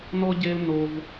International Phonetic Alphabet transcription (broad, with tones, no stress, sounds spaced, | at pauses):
n ɔ˥ ɟ e˥ l n o˥ v